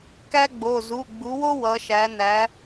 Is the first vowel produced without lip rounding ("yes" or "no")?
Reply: yes